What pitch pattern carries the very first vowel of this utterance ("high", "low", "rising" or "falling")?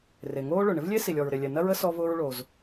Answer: low